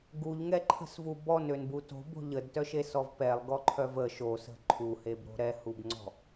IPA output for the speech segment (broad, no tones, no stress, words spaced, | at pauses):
ɡuʎŋɛǃʰə̤svu bɔnønbu to̤bo̤ ʎədtœʃesɔv pɛlˠɡɔǃʰœv ə ʃosə̤ ǃʰuhebɾo̤ ɾɛhubŋ͡ǀɔ̤